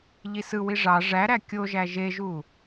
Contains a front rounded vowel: no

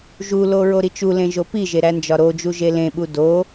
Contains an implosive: yes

